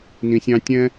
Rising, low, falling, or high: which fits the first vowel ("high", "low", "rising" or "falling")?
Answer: low